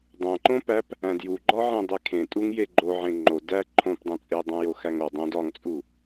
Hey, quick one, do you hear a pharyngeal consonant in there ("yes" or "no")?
yes